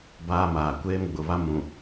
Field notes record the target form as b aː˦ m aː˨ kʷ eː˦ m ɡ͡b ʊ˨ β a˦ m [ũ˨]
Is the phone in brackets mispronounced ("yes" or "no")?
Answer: no